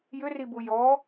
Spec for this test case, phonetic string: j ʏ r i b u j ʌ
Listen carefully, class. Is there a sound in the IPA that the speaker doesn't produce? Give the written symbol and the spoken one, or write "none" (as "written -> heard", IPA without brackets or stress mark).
ʌ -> ɔ